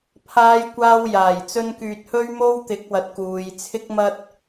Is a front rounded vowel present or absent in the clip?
present